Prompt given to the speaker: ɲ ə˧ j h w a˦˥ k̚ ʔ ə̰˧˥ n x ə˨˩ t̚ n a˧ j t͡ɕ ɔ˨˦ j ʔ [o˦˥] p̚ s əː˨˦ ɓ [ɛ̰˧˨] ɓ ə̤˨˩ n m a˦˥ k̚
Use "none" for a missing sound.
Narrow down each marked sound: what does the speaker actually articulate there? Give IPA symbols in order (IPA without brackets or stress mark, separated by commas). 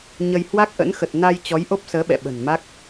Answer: o˦˥, ɛ̰˧˨